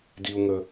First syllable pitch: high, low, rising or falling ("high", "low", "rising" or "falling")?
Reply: high